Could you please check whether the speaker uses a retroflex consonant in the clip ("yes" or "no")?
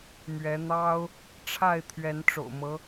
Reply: yes